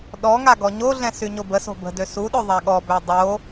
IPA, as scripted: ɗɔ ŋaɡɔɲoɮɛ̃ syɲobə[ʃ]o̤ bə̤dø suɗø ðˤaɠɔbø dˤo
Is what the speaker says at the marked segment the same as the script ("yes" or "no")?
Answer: no